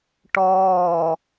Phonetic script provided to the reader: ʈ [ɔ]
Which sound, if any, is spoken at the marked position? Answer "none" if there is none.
ɔː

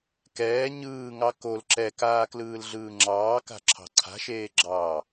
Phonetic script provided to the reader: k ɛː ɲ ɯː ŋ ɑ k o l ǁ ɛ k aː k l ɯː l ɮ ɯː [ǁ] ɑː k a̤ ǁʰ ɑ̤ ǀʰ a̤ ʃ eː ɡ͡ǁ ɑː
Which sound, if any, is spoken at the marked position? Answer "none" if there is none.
ŋ͡ǁ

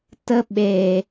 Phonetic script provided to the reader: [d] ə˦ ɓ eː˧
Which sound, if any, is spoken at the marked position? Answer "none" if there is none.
t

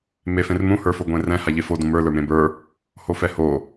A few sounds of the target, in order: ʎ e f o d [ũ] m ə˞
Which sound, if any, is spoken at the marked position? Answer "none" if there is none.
ũ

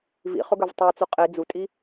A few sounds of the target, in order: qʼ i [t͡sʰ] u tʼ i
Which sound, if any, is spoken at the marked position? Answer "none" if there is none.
d͡z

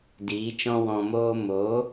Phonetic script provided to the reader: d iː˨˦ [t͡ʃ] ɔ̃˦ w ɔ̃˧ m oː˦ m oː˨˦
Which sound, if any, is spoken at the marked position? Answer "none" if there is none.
t͡ʃ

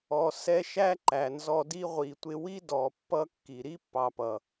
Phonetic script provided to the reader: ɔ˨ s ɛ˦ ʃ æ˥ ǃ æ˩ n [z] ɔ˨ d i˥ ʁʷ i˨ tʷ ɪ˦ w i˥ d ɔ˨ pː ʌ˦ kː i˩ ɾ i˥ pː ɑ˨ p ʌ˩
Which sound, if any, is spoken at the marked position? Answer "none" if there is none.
z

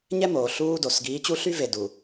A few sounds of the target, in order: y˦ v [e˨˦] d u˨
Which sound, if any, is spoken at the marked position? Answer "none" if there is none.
e˨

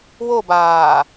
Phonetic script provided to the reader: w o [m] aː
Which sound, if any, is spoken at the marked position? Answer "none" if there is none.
b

